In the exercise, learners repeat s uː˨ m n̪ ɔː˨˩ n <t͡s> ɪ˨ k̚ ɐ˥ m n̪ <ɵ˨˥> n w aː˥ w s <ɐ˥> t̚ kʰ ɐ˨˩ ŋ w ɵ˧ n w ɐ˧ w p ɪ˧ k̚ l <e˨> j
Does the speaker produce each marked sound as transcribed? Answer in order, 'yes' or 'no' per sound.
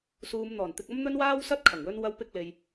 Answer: no, no, yes, yes

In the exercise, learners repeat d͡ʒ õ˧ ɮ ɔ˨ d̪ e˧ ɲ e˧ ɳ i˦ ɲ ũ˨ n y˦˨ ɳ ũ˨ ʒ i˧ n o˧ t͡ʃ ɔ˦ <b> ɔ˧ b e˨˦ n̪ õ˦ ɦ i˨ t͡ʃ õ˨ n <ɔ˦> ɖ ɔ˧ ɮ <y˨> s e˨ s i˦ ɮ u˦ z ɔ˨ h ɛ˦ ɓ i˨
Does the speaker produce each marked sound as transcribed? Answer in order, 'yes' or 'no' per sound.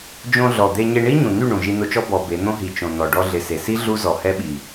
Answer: yes, no, no

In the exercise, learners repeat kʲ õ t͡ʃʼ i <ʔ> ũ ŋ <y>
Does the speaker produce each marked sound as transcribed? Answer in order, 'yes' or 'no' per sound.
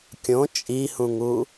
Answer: no, no

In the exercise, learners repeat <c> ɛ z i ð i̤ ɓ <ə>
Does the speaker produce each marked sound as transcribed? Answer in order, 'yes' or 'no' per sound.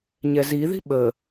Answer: no, yes

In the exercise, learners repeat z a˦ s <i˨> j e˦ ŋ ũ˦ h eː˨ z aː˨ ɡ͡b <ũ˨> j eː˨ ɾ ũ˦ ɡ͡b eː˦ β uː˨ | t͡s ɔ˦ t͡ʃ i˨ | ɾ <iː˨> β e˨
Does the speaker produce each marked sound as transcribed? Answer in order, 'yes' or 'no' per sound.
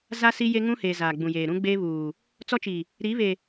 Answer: no, yes, no

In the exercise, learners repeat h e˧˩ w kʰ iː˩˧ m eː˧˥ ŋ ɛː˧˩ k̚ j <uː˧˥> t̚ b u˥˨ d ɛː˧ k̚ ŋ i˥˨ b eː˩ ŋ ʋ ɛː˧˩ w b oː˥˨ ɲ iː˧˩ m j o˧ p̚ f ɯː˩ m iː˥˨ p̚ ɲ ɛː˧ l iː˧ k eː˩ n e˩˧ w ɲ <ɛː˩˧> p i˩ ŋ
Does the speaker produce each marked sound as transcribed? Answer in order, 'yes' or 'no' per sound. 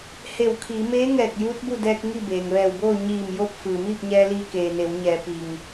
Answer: yes, yes

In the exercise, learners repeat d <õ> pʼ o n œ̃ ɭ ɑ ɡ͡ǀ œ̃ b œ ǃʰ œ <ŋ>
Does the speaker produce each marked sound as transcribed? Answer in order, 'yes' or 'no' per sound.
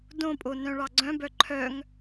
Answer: yes, yes

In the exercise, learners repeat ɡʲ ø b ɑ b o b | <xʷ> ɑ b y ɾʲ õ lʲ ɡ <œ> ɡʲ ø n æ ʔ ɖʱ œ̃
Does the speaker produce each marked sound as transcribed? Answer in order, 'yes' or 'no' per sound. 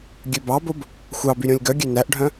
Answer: yes, yes

